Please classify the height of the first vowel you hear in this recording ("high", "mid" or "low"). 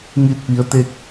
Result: high